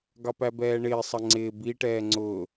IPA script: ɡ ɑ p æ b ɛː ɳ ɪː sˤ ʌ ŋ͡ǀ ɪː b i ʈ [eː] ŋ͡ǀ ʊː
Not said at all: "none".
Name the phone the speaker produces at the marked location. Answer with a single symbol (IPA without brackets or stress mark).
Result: ɛː